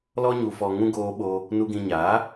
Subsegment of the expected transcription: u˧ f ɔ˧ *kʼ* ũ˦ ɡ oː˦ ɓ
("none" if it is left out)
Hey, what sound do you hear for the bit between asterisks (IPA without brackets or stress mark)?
ŋ